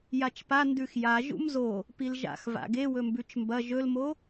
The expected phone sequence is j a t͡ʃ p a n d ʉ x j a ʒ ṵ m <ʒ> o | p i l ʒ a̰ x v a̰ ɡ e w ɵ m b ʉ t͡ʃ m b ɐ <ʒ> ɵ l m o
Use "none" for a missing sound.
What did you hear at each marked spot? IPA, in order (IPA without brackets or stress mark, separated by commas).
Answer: z, ʒ